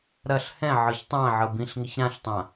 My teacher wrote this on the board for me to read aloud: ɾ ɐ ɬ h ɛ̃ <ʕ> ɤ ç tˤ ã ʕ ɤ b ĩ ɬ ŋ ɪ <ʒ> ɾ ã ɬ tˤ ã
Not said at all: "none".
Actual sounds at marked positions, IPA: ʕ, ç

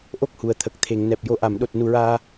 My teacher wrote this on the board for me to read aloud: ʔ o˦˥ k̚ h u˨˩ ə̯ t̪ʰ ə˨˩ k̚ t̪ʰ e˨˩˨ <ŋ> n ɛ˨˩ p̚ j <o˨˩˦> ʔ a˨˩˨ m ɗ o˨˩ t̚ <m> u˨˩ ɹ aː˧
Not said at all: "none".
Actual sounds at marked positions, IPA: ŋ, o˨˩˦, n

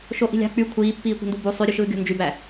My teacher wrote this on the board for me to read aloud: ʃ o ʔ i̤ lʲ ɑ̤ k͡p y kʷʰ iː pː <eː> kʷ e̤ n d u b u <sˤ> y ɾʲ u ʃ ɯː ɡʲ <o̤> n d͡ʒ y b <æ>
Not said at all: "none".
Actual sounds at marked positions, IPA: iː, sˤ, o̤, æ

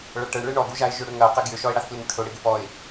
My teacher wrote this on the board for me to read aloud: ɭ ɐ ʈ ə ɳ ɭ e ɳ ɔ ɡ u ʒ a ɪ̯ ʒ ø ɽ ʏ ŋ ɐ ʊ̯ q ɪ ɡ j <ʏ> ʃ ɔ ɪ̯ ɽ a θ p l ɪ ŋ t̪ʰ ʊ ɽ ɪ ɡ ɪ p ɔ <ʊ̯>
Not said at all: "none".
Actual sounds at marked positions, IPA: ʏ, ɪ̯

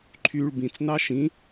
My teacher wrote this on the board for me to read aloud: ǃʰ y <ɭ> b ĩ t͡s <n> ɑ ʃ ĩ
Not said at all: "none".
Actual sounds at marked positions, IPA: ɭ, n

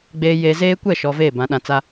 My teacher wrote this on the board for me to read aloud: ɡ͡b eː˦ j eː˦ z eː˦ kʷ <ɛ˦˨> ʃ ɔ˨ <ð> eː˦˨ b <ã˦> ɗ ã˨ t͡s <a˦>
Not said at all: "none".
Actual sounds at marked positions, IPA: ɛ˦˨, v, ã˨˦, a˦

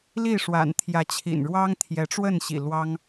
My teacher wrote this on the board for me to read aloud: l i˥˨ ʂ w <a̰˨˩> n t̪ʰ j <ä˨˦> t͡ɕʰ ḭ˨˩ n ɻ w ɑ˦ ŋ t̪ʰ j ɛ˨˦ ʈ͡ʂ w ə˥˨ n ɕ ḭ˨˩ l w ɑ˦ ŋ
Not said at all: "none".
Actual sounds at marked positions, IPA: a̰˨˩, ä˨˦

